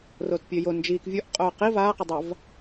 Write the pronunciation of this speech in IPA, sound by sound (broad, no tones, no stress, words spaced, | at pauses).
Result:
roːtpʲɘːjo nd͡ʒiːk vʲuʔ qʼoːqi vaːqedˤav